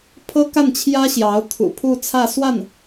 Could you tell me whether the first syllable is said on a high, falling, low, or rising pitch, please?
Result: high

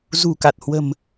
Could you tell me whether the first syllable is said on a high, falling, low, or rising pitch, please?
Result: low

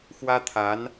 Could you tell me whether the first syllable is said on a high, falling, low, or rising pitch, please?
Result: high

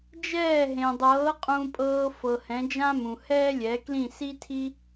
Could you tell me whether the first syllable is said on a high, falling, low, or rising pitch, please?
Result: falling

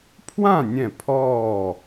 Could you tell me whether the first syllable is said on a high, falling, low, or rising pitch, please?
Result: falling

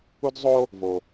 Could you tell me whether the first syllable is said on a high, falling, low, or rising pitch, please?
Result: high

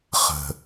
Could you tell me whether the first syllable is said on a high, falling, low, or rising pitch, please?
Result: low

